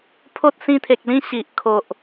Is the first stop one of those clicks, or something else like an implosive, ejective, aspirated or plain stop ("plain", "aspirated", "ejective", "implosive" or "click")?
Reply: aspirated